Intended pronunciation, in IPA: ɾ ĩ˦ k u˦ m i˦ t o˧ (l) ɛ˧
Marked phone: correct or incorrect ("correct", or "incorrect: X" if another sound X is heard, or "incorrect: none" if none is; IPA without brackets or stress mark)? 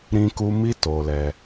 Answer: correct